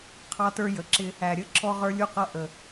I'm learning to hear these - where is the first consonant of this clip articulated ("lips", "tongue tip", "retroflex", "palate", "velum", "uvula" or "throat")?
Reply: uvula